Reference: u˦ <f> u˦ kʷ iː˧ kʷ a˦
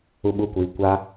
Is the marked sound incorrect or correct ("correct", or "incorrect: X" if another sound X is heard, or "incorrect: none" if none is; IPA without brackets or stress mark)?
incorrect: ɓ